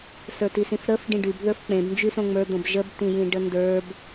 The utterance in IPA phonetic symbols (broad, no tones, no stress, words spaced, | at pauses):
sə˞tisĩfɾəf ɖĩɖyb ðə˞fk͡pẽb nd͡ʒysõŋ͡mə˞d̪õb ʒəbtĩjĩ ɖəndə˞b